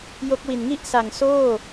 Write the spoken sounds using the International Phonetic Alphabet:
j o˦˥ k̚ w i˨˩ n ŋ i˥˩ ʔ s a˨˩ ŋ s oː˥˩

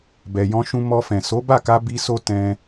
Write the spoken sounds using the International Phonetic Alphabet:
b ɛ˨ j ɔ̃˧ ʃ ũ˧ m ɔ˧ f ɛ̃˨ s o˨˦ b a˦˨ k a˧ b i˦ s o˦ t ɛ̃˧

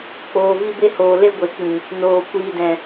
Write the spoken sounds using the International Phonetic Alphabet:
k͡p oː˨ v i˧ b e˧ h oː˨ l e˦ ɡʷ e˨ k͡p ĩ˨ | n oː˨ kʷ iː˨ d ɛ̃˨

